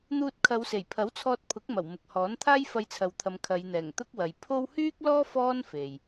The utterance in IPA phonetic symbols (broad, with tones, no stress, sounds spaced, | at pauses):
n̪ uː˧ t̚ kʰ ɐ˨˧ w s e˨˩ j pʰ ɐ˨˥ w t͡sʰ ɔː˧ t̚ pʰ ʊ˨˥ k̚ m ɐ˨˩ w m ʊ˨ k̚ h ɔː˨˥ n t̪ʰ aː˥ j f ɐ˧ j t͡sʰ ɐ˨ w t̪ʰ ɐ˨˧ m kʰ ɐ˨˧ j n̪ ɛː˨˩ ŋ t̪ ʊ˥ k̚ w ɐ˨ j pʰ o˥ w h yː˥ k̚ l ɔː˥ f ɔː˥ n f e˨ j